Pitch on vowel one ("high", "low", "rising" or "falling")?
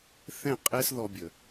falling